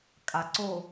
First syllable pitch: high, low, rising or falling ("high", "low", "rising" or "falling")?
low